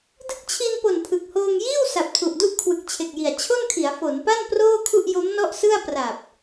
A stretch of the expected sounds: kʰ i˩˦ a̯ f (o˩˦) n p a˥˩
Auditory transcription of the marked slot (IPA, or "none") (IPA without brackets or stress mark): o˩˦